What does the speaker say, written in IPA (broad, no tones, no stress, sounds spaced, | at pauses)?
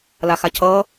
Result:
l a x a cʰ ʌː